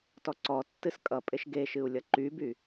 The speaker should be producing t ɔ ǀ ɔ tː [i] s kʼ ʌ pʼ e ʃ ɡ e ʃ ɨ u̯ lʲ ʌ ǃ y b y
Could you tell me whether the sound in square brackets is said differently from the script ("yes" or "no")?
yes